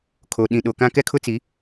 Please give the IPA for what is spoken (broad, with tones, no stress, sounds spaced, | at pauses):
kʰ o˨ ɗ ĩ˨ ɗ o˨ k ã˦ k ɛ˦ kʰ ʊ˦ t͡s i˨˦